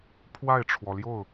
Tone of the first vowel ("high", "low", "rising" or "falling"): falling